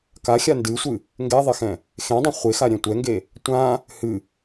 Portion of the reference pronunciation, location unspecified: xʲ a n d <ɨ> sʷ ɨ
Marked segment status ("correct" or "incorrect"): correct